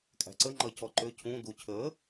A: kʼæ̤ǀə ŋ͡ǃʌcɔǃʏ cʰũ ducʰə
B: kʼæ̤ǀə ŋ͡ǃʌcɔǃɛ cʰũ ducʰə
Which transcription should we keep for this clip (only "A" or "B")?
A